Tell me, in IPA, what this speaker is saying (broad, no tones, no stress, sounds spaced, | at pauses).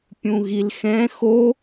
pʲ ũ ɣ i l x ɛ̃ x o